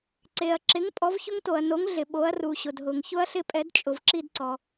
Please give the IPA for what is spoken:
ǀ e˩ ɐ̯ ǁ ɪ˩˥ ŋ pʼ ɔ˩˥ v ç ʊ˦˥ ŋ t o˩ ɐ̯ n o˩˥ ŋ ɮ ɪ˩ ɓ o˩˥ ɐ̯ r u˩ ɕ ʊ˩ d ɦ ʊ˩ ŋ ç ʊ˦˥ ɐ̯ ɬ ɪ˦˨ pʼ ɛ˩˥ d t͡ʃʼ ʊ˩ v ǁ i˦˨ d ǀ ɔ˩

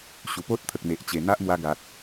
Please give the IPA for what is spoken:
ɕ u˨˩ p o˦ t̚ t̪ʰ ə˨ k̚ n̪ e˨ ʔ t͡ɕ e˨˩ n̪ a˦ ʔ m w a˧ ɡ a˨ t̚

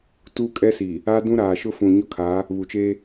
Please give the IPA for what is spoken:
t uː˦ kʼ ɛ˦ s i˨ | a˦ d ũ˦ ɾ aː˨ ʃ ʊ˦ f ũ˨ ɲ ʊ˦ kʰ a˨˦ | β u˨ t͡ʃ e˦

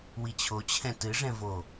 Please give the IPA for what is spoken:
w i t͡ɕʰ o t͡ɕʰ ɛ̃ t ɨ ʐ ɛ̃ v o

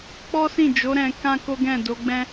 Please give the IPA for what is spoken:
k͡p ɔ˦ s ĩ˦˨ d͡ʒ o˨˦ ɾ ɛ̃˧ k ã˦ k o˦ ɡ ɛ̃˦˨ d o˨˦ ɡ͡b ɛ̃˦

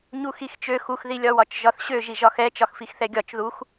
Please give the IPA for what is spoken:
ɲ u x i x t͡ʃ ø x u x ð i lʲ ɒ w ɒ t͡ʃ ʒ ɒ θ ɕ ø ʒ i ʒ ɒ x ɛ t͡ʃ ɒ x f i x θ ɛ ɡʲ ɒ t͡ʃ ð u x

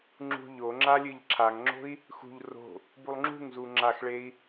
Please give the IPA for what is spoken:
ŋ͡ǁ ṳ ʎ o ŋ͡ǁ a lʲ ɨ ʎ ǁʰ a ŋ ŋ͡ǁ o̤ i̯ | x ṳ ʎ r o̤ | b u lˠ ŋ͡ǁ ṳ ŋ z u ŋ͡ǁ a x ɭ e i̯

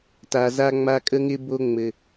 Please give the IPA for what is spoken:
t a˨ z a˦ ŋ͡m a˦ kʼ ə˦ ŋ ɪ˦ b o˦ ŋ͡m ɘ˨

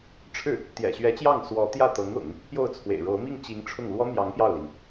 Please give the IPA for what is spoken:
ʈ͡ʂʰ ɻ̩˥˩ | t̪ j ɛ̰˨˩ ɕ ɥ ɛ˧˥ t͡ɕ j ɑ˥˩ ŋ s w ɔ˧˥ t̪ j ä˥˩ t̪ ɤ˧˥ ŋ ʊ̰˨˩˦ ŋ | p j o˥˩ ʊ̯ t͡sʰ w ḛ˨˩ ɪ̯ ɻ o˧˥ ʊ̯ m i˥˩ ŋ t͡ɕ i˧˥ ŋ ʈ͡ʂʰ ʊ˥˩ ŋ l w ɔ˥ n̪ j ɑ˧˥ ŋ p j ɑ˥˩ ʊ̯ l i˩ ŋ

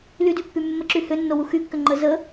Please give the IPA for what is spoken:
l y d y pː y mː ə ǁ y h ʏ nː o w u x y kː ʏ ŋ͡ǃ ə z ə

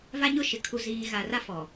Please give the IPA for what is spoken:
v a˦ ɲ ʊ˦˨ ʃ ɪ˨ kʰ u˨ z iː˨ ɣ a˨ r a˦ f ɔ˨

